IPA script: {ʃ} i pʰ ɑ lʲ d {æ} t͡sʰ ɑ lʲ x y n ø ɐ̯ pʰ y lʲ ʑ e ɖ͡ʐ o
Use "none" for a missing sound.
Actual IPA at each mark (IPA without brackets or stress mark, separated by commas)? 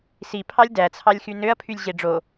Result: s, æ